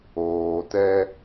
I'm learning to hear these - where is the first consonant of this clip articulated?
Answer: tongue tip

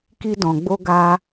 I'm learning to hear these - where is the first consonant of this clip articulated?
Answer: velum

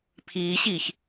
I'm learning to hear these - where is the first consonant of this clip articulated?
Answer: lips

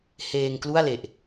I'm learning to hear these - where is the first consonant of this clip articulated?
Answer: throat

